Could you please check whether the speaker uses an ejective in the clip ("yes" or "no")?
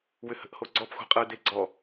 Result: yes